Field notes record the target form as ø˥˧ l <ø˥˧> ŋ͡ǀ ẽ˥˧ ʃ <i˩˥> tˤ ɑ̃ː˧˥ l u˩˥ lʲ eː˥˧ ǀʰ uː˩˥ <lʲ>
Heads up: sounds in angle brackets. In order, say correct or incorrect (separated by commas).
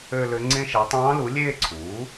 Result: incorrect, incorrect, incorrect